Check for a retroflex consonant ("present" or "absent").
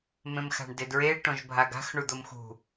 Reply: present